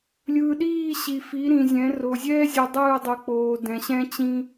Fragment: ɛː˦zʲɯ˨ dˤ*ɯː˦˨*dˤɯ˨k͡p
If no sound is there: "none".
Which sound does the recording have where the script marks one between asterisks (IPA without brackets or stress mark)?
ɯː˦˨